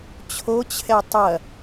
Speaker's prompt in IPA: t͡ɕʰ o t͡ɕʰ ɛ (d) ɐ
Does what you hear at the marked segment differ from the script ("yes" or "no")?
yes